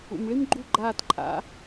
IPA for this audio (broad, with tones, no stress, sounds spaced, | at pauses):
ṵ˩ m ɭ i˥ m ɡ͡ǃ u˥˩ ɡ͡ǃ aː˥˩ t ǃʼ a̰˩˥